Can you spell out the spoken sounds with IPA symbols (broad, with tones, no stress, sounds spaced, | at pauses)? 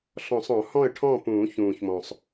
ɬ ɔ̃˨˩˦ sˤ ɔ̃˨˩˦ h ɔ̃˥˨ ə̯ ʈʰ ɔ̃˥˨ p ũː˨˩˦ ç ũː˨˩ ç m ɔ̃˨˩ sˤ